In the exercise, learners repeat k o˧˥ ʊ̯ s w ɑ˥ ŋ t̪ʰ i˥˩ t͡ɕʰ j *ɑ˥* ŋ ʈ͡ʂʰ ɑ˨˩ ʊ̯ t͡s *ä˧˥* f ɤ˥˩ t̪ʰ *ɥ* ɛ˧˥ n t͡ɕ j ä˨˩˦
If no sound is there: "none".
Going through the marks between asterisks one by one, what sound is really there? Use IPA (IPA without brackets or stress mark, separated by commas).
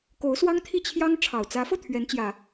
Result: ɑ˥, ä˧˥, ɥ